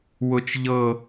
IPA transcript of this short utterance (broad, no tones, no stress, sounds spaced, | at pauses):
w ʊ t͡ʃ ʎ ɤ